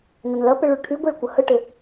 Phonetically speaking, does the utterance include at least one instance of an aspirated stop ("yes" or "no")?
yes